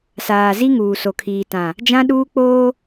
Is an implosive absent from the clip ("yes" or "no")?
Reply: no